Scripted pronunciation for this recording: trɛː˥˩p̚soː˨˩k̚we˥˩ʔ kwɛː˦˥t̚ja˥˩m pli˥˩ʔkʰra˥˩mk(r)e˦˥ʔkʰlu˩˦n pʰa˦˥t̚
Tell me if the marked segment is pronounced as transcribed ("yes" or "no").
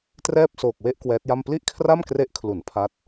yes